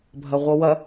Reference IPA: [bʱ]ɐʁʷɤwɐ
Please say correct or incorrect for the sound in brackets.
correct